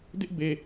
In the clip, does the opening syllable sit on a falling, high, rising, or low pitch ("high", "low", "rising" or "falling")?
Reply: high